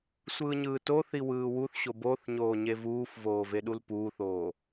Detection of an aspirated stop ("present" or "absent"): absent